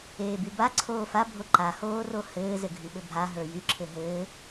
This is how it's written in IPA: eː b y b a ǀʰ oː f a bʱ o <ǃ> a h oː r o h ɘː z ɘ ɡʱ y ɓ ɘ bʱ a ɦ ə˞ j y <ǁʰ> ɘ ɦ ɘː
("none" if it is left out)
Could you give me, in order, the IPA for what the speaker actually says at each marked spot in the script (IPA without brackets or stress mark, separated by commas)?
ǃ, ǁʰ